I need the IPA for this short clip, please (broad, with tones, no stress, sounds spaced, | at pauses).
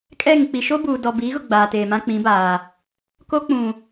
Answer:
kʼ ɛ˦˨ ŋ k͡p i˨ ʃ o˦ b uː˨ d ɔ˨ b iː˨˦ ɣ ʊ˨ ɡ͡b aː˨ t eː˨ m ã˦ k͡p ĩ˨˦ b aː˨ | k o˦ k͡p ũ˨